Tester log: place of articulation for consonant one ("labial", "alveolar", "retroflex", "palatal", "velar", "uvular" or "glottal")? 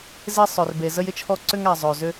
alveolar